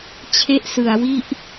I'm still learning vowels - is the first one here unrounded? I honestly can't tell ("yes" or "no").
yes